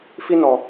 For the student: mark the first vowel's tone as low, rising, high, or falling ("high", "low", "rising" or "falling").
high